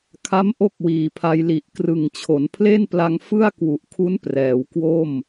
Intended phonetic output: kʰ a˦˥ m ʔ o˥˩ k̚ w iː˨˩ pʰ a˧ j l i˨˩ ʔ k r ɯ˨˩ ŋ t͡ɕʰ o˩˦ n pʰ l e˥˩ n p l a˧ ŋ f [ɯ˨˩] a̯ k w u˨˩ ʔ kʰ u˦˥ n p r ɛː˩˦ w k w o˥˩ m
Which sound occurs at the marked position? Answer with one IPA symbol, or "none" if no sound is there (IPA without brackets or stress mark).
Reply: ɯ˥˩